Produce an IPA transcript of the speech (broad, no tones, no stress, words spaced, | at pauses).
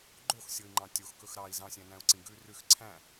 ɡ͡ǃoxsʲoi̯ŋ͡ǃɑ̃ tʲoxkɵx ɾɑi̯ zɑ̃sʲæ̃næ̃u̯ǀĩ ɡʉ rʉx ǀʰæ̃